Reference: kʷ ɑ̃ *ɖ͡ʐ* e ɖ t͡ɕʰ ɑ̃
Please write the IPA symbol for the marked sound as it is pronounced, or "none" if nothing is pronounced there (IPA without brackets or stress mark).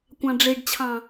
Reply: ɖ͡ʐ